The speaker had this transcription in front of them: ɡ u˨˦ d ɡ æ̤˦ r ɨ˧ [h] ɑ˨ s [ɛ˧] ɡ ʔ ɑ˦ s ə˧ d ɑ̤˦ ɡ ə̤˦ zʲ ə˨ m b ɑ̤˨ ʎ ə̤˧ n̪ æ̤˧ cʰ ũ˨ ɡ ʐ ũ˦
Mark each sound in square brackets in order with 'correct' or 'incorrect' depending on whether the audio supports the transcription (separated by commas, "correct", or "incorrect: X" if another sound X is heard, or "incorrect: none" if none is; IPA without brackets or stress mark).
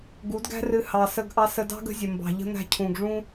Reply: correct, incorrect: ə˧